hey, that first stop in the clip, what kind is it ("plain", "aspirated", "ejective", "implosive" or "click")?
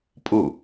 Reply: ejective